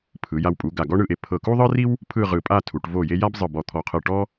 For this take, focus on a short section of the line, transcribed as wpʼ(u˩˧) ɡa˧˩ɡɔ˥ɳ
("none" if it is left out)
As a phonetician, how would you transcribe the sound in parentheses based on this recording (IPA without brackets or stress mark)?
u˩˧